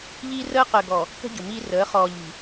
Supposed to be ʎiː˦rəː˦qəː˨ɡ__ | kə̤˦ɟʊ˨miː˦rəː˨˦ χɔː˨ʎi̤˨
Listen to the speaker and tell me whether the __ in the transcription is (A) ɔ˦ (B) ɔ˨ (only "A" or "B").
B